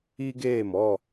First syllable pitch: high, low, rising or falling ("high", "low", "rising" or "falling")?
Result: high